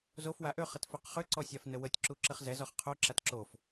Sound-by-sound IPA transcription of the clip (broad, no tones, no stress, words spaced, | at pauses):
zof waʔøχət føqχʏǀɔ sʲafnəwətʲǁu ǁəχzɛzɔχ qʰoǁat ǁof